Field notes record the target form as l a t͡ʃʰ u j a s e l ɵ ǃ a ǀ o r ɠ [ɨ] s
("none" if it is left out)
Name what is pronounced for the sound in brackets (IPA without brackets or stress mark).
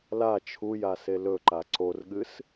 ɨ